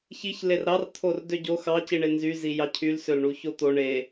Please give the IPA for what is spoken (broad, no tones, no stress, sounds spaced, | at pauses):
ç i ç l e r ɾ ɑ r t̪ʰ o r d ø ɟ o x ɑ c i ɳ e n z y z i j ɑ cʰ y l s ø l ɳ u ç o t̪ o ɳ e